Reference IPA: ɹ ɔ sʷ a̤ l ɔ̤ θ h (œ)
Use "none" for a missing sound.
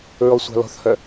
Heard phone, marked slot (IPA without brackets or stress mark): œ